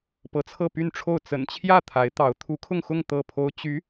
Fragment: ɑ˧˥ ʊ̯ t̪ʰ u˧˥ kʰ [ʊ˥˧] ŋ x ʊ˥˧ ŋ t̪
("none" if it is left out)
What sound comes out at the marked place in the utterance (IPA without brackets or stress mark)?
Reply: ʊ˥˧